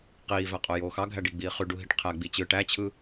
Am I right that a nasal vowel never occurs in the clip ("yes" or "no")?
yes